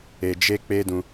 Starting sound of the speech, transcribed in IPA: e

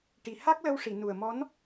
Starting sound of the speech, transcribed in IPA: ʈ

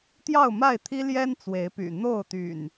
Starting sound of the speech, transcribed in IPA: t̪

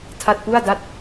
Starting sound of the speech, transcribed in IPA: tʰ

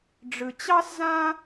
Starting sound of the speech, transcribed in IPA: ɖ͡ʐ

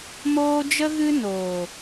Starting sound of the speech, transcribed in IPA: m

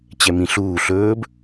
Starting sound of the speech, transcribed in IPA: t͡ɕ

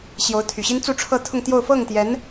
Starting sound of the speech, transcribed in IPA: ɕ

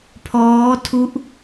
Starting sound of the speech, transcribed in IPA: pʰ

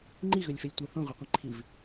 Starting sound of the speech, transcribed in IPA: ŋ͡ǃ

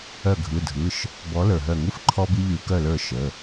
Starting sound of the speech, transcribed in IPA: œ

